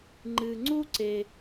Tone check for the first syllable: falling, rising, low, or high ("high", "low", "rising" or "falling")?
low